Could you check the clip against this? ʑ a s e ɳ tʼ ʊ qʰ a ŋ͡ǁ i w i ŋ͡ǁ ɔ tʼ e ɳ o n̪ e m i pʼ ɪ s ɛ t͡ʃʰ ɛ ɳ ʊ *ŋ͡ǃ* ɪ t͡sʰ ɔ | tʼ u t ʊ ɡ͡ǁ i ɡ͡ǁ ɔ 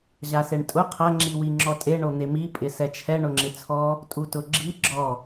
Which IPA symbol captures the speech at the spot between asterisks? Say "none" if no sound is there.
ŋ͡ǁ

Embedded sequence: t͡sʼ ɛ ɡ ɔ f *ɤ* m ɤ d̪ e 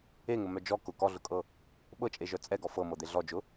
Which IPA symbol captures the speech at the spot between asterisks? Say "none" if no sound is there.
ɤ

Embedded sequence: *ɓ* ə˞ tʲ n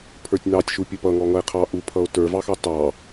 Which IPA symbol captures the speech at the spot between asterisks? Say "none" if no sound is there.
pʰ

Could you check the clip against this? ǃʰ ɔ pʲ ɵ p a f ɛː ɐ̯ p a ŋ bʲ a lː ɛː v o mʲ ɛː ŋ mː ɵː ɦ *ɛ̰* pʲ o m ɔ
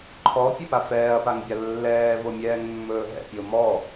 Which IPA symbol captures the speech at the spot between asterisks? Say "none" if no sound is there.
ɛ̰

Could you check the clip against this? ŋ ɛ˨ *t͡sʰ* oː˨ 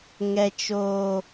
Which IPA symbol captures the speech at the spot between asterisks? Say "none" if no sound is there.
t͡ʃ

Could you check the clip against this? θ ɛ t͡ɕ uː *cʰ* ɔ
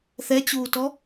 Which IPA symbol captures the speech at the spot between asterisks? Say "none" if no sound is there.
t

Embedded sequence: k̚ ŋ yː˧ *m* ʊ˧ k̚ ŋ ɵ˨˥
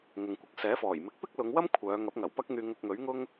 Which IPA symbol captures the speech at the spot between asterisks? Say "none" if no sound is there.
ŋ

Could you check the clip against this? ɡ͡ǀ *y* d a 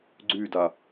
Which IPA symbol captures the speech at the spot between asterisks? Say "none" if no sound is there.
y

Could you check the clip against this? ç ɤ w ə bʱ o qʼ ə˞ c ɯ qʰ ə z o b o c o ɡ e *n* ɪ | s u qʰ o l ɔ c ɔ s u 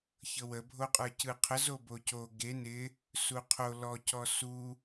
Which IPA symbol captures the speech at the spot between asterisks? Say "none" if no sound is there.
n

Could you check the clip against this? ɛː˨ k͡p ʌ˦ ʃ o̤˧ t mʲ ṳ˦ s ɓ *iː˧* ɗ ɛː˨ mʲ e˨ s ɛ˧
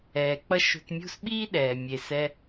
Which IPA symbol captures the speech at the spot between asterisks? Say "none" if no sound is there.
iː˦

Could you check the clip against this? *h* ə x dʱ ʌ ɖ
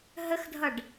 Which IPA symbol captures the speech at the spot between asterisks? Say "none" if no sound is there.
ɦ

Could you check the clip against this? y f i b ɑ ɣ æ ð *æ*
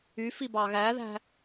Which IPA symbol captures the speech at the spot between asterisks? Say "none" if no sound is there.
æ̤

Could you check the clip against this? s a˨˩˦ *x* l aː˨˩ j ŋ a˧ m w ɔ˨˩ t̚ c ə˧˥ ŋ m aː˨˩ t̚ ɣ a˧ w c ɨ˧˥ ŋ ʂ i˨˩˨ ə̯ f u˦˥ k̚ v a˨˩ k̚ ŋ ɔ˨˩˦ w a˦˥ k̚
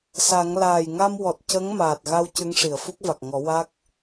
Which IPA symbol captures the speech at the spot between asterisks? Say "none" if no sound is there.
ŋ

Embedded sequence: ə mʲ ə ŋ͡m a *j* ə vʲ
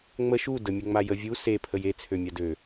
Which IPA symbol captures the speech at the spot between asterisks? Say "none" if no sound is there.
j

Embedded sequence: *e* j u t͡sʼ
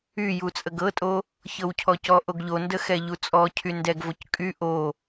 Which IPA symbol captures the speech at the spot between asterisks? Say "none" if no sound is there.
y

